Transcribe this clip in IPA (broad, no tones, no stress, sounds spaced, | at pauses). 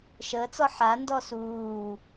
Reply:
ʃ əː t͡s ɔ ħ a n d ɔ s uː